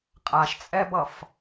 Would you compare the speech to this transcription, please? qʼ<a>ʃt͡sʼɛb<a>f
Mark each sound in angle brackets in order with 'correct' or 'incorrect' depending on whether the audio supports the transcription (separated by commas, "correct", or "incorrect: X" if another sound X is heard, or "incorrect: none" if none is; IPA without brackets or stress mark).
correct, incorrect: ʌ